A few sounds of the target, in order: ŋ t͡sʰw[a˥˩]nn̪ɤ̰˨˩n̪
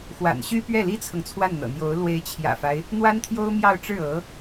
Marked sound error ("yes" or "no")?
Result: no